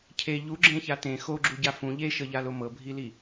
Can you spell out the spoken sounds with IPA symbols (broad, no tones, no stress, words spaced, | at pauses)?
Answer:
cʰe ʎuɡ͡ǁẽça tẽ xoɡ͡ǁuɟa fũ ʎeʃɤʎalo mɤbʱili